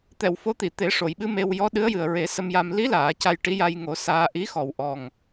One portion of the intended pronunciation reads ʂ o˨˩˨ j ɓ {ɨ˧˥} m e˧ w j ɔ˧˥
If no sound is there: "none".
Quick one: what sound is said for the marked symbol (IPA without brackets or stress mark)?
ɨ˧˥